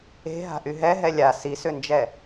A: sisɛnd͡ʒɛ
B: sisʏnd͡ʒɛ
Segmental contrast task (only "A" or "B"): B